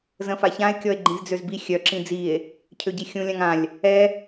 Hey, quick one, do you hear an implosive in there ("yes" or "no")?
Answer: no